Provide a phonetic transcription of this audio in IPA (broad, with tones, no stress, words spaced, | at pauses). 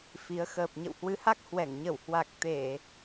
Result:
fi˨˦ə̯ xəː˨˩p̚ɲə̰˧˨whwɨ˨˦ha˦˥k̚ hwɛ˧˩ŋɲə˧˩w hwa˨˩k̚ t̪e˧˩˨